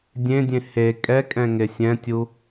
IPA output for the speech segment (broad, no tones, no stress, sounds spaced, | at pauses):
dʲ ẽ dʲ ẽ h e kʼ ɛ kʼ ɛ̃ ŋ e sʲ ɛ̃ tʲ u